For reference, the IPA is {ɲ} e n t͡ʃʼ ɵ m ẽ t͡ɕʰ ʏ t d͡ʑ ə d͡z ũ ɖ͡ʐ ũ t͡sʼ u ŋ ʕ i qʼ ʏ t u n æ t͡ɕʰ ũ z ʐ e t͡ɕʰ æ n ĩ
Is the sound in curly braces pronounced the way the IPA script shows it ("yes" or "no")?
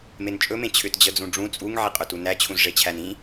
no